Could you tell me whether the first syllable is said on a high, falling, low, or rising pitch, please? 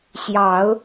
rising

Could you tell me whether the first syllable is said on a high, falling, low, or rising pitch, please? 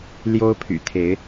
high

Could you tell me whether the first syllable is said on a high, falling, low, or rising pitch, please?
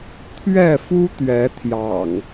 falling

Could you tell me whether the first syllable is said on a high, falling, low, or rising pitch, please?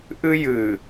high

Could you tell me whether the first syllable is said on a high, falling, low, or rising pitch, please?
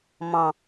low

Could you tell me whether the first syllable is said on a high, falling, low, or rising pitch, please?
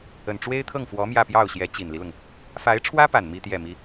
low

